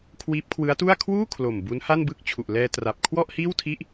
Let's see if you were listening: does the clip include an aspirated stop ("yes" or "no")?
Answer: yes